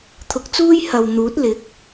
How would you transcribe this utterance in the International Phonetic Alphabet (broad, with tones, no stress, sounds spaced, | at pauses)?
t̪ʰ ʊ˨˥ k̚ t͡s uː˥ j h ɐ˨ w n̪ uː˨˥ t̚ l ɪ˨˥ k̚